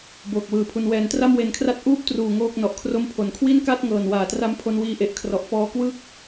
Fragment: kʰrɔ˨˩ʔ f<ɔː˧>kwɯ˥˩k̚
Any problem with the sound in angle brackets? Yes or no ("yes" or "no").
no